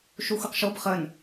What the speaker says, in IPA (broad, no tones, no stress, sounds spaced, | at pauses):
ʃ u xʷ ɯ q ʃ o b χ ə n